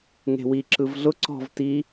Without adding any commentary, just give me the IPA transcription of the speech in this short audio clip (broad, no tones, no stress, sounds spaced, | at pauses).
ŋ e̤ w i ǁ ɯ v ɮ ʊ ǀ ɔ̤ v t i